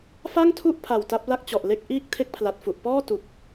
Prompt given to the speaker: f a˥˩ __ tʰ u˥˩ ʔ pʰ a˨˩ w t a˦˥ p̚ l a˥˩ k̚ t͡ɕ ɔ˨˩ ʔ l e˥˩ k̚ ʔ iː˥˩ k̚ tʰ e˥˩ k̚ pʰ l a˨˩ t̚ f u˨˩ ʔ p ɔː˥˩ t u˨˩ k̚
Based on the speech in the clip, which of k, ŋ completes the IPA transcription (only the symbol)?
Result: ŋ